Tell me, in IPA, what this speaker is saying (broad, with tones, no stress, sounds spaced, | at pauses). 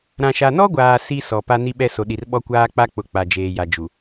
ɾ ã˨ ʃ a˨ n ɔ˦ ɡʷ aː˨ s i˦ s ɔ˨ p a˦ n i˦ ɓ ɛ˦ s o˨ ɗ i˨ r ɓ ɔ˦ kʷ aː˦ k͡p a˦ k͡p ʊ˨ k͡p a˨ d͡ʒ eː˨ j a˨ d͡ʒ u˨